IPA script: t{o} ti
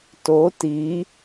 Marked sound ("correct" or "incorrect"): correct